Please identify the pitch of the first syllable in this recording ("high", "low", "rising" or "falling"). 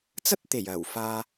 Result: high